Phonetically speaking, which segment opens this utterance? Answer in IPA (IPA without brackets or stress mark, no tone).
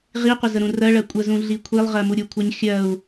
ʁ